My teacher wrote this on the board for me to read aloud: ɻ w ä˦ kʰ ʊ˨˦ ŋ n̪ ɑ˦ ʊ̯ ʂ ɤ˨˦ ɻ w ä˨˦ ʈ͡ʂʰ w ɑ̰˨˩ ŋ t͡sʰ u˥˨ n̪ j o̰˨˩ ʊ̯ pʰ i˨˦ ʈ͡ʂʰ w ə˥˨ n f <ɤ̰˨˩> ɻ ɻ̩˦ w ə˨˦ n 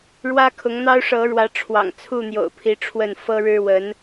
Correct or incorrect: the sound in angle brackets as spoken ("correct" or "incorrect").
incorrect